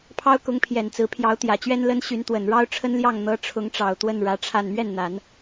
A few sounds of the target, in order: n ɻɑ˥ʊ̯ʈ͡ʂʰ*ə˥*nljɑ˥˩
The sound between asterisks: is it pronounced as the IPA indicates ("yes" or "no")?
yes